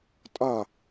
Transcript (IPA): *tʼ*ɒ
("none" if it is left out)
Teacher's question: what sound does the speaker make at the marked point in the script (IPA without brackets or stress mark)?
tʼ